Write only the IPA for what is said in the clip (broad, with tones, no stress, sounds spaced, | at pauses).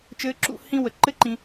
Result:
t͡ʃ ɘː˧ ǁ ṵ˧ h ĩ˦ w ə˨ ǃ ɘ˦ ǃ ĩ˧